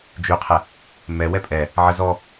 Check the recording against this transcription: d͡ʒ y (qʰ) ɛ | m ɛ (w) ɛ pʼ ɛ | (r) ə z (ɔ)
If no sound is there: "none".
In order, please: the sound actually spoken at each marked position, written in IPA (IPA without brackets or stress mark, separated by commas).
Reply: qʰ, w, ʕ, ɔ